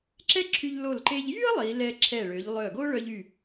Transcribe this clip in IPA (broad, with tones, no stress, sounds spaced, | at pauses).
ǁ ɛ˥ ǁʰ y˧ ʎ l o˧˩ l ǃ e˧ ʎ j y˥ ə̯ lˠ i˩˧ l ɛ˧ ǁʰ ɛ˧˩ ɭ ø˩˧ ʎ lˠ œ˧˩ ɡ o˥ ɭ œ˧ ʎ y˧˩